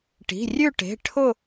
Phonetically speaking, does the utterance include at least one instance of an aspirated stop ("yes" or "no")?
yes